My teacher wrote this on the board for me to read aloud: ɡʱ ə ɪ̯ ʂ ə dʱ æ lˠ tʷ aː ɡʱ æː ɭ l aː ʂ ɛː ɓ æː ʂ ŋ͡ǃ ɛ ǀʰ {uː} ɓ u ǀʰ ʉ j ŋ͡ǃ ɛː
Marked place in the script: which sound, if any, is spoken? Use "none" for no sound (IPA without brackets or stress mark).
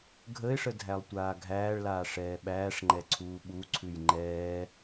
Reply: uː